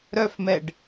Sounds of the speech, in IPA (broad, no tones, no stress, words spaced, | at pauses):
ɾœfmɛɖ